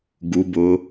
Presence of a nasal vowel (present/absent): absent